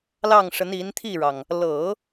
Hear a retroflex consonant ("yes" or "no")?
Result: yes